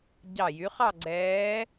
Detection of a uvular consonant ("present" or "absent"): present